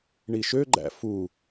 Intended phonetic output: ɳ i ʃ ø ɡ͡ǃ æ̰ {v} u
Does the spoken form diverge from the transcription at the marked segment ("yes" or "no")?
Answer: yes